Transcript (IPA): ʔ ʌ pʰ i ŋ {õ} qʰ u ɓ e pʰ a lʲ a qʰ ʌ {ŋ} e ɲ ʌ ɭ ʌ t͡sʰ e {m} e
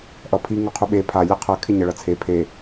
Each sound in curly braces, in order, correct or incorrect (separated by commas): incorrect, incorrect, incorrect